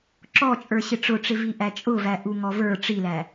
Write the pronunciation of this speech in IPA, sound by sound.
ǁ ɔ t͡ʃʼ ə˞ ɕ ɪ ʈ͡ʂ ʊ ʈ͡ʂ ɪ v i ʔ æ t͡ʃʼ ʊ v æ ʔ u ŋ ɔ v ə˞ ʈ͡ʂ i l æ

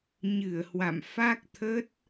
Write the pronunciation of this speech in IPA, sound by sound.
ɲ ɨ˧˩ ə̯ h w a̰˧˨ m f a˦˥ k̚ t̪ʰ ə˦˥ t̚

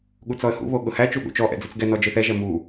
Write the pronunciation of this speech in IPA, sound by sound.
ɠ u t͡s ɔ ə̯ h ṵ β o ɠ ʊ h æ t͡ʃ u ɠ ṵ t͡ʃ ɔ ʔ ɛ̰ d͡z ɯ t͡s ɡ ɛ n ɔ d͡ʒ ɯ θ ɛ ʒ ɛ m u

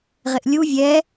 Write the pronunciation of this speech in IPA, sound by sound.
ʁ ɪ ʔ lʲ u vʲ ɛ

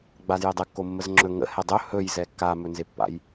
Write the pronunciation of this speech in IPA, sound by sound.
ɡ͡b a z j e dˤ ɘ kː o mː ə z ŋ͡ǁ ɵ ŋ ə̰ h ɛ dˤ ɵ h ɵ j z ɛ kː a m ɵ n z e pː a̰ j

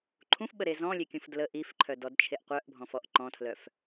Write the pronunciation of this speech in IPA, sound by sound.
ǃʰ ũ f ɓ ə ɾ e z ɔ̃ lʲ e kʲ ũ f d l ə ʔ i f ǃʰ œ d ɔ d t͡ʃʰ e ʔ qʷ œ ʔ bʱ ɔ̃ f ɔ ʔ ǃ ɔ̃ tʰ l œ f

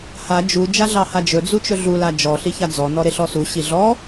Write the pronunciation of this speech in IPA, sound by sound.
h a d͡ʒ u d͡ʒ a ɮ ɑ h a d͡ʒ ɵ d͡z u t͡ʃ ɵ ɮ u l a d͡ʒ ɔ ɬ i ç a d͡z ɔ n ɔ ɾ e ɬ ɔ s u ɕ i ɮ ɔ

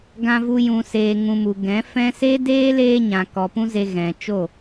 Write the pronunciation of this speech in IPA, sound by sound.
ɡ ã˦ v u˦ j ũ˧ s eː˧ ŋ ũ˧ m u˨ ɡ ɛ̃˨˦ f ɛ̃˦ s e˦ d eː˦ l eː˦ ɲ ã˨ k ɔ˨ p ũ˦ z e˧ ɣ ɛ̃˨ t͡ʃ o˦˨

